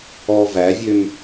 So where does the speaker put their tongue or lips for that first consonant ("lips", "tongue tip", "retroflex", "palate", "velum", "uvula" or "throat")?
lips